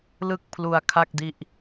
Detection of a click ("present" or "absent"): absent